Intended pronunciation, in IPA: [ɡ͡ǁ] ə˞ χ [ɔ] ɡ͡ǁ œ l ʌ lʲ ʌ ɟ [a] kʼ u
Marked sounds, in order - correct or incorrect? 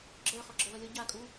correct, correct, correct

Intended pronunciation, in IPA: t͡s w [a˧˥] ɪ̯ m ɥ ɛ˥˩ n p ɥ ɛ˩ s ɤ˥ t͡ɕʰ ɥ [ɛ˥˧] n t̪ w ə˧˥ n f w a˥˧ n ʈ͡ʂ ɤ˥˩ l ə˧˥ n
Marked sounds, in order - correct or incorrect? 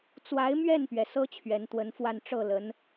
correct, incorrect: ɛ˧˥

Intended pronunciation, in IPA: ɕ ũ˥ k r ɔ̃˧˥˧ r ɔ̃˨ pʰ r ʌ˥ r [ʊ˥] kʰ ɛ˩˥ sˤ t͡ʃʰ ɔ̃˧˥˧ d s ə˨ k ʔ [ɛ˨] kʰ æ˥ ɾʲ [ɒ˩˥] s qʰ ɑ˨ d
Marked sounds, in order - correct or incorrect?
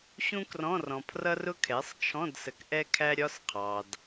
correct, incorrect: ɛ˥, incorrect: ɒ˧˥˧

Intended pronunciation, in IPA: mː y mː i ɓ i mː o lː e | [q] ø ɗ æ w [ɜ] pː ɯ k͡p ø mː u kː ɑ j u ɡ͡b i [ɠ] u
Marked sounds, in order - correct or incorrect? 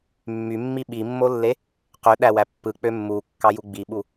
correct, incorrect: æ, incorrect: ɓ

